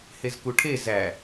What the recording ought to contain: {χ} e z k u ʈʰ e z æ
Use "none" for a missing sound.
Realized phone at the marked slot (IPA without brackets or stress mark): h